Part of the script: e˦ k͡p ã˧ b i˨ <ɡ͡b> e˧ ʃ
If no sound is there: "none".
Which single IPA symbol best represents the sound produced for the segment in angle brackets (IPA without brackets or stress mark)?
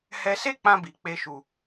k͡p